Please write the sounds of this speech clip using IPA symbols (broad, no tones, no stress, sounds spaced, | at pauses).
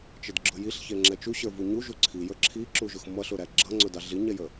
t͡ʃ ə d ɡ͡ǁ ʊ j i ɬ ç ɛ ŋ͡ǁ ɛ t͡ʃ u ɕ ə˞ v u ɲ u ʒ u ǀʰ i j ə˞ ǁʰ i ǁ u ʒ ʊ x m ʌ ɬ ʊ ɾ æ ɡ͡ǁ ʌ ŋ͡ǀ ʊ d ɑ ɮ i ɲ ɛ j ə